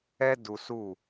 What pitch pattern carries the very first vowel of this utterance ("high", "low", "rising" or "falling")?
high